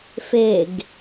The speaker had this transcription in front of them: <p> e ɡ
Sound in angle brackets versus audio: incorrect: f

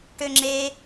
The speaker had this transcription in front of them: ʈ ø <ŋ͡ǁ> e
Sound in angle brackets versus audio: correct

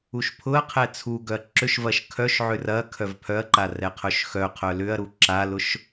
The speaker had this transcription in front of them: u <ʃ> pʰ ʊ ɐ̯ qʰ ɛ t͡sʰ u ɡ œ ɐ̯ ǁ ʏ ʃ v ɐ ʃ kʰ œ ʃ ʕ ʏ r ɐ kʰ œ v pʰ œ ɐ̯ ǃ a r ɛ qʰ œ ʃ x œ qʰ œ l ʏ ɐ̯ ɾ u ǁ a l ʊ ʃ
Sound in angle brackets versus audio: correct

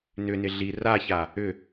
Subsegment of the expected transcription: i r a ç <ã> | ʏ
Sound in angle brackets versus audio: incorrect: a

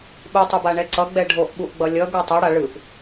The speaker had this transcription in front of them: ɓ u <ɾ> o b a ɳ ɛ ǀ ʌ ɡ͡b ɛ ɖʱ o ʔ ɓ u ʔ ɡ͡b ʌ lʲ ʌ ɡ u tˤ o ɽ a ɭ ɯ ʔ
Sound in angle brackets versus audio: incorrect: tˤ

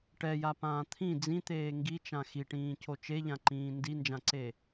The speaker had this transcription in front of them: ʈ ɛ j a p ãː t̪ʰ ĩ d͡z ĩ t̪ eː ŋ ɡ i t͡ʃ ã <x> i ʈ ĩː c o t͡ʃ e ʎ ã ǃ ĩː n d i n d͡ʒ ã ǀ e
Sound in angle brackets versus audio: correct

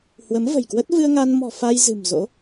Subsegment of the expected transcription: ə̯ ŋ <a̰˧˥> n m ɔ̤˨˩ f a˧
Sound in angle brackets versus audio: incorrect: a˧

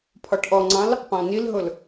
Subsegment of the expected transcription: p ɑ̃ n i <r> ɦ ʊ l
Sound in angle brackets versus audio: incorrect: l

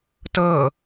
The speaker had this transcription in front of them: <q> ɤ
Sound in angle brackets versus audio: incorrect: t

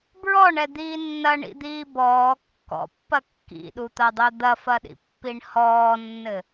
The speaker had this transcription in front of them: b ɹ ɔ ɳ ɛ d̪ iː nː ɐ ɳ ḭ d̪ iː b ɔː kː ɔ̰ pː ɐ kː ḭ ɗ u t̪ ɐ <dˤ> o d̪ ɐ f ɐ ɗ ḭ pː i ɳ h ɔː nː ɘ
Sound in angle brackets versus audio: correct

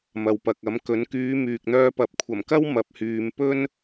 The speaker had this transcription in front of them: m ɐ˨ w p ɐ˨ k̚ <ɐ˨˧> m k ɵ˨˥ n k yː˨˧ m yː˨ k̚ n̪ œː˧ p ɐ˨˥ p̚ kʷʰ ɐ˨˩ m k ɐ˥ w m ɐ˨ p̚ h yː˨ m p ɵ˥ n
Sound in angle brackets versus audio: incorrect: ɐ˨˥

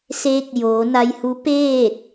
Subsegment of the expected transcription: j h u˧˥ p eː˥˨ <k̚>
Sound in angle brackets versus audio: incorrect: t̚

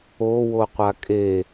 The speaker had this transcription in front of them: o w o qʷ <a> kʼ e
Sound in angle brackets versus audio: correct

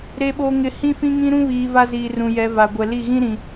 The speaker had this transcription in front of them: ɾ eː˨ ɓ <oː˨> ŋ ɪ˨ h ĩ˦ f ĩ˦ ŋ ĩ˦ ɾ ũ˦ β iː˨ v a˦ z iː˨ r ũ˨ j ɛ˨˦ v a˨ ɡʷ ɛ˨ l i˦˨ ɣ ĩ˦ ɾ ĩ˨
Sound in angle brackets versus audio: correct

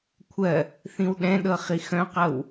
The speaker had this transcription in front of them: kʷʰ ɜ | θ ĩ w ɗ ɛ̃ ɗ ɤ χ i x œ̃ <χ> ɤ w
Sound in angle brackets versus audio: incorrect: q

